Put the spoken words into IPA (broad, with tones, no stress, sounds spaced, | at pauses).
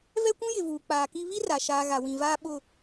v ɛ˦ kʷ ũ˦ j ɪ˨ v uː˨ k͡p aː˨ k i˦ β i˦ r a˨ ʃ aː˨ ɣ a˨ w ĩ˨ v aː˦ ɓ ʊ˦˨